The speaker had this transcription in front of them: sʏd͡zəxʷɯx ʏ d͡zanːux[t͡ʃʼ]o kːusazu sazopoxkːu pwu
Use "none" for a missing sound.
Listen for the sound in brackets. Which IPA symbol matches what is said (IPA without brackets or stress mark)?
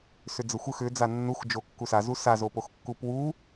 d͡ʒ